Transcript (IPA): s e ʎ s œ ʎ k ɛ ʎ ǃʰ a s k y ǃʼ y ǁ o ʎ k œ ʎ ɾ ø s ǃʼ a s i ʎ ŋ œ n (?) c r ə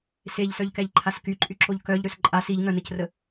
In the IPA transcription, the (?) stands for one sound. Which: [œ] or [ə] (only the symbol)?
ə